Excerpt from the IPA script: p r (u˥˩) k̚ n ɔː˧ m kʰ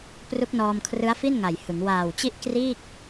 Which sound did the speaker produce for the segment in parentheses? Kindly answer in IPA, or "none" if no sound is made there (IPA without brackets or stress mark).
u˦˥